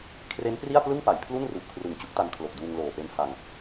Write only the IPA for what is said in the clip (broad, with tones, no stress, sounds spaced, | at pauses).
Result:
kʰ r e˦˥ n p r i˥˩ a̯ p l ɯ˥˩ ŋ p a˩˦ j pʰ l u˥˩ n r u˨˩ ʔ kʰ r ɯ˨˩ ŋ t͡ɕ u˦˥ k̚ t a˧ n kʰ l o˨˩ k̚ d uː˧ ŋ l oː˨˩ p e˧ n h a˧ ŋ